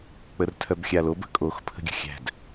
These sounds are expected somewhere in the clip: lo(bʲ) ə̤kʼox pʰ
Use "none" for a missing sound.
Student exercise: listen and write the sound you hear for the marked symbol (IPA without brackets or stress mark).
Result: b